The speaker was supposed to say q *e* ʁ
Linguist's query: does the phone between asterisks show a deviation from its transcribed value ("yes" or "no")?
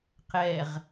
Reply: yes